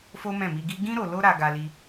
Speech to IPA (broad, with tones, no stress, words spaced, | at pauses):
fo˦mɛ̃˦˨mi˧ɡi˦ ɡĩ˦ ɾo˧lo˦ɾa˧ ɡa˧li˧